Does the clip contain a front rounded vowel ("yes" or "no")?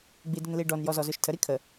no